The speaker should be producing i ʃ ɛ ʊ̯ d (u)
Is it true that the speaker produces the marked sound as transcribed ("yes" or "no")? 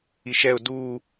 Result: no